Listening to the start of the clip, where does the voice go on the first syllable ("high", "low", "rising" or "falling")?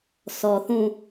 low